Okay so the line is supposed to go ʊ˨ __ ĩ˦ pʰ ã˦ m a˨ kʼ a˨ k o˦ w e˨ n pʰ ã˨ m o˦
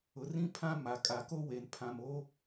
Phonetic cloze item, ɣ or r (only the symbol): r